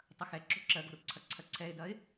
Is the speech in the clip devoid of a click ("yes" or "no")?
no